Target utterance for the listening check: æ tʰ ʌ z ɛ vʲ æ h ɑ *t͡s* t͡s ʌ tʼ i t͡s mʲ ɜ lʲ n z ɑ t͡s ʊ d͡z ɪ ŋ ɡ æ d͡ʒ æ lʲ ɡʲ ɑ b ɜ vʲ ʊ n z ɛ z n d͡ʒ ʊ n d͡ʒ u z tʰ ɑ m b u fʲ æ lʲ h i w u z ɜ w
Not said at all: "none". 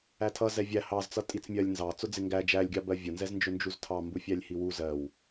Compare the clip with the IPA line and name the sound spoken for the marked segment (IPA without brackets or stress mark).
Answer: z